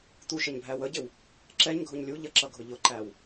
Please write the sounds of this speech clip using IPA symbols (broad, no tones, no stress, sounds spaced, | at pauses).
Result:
t̪ u ʃ ə ɲ bʱ æ w ə ɟ ɪ w | ǁ ɛ ɲ ɡʱ ʊ ɲ lʲ u ʎ ə ǁ ʌ ɡʱ ʊ ʎ ʊ ǃ æ w